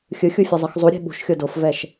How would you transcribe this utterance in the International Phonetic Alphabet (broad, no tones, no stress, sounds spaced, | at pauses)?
xʲ ɯ xʲ u fʲ ʌ zˤ ɯ x zˤ u ɾʲ e̤ ɓ ṳ ʃ xʲ o d o f v ɛ ʃ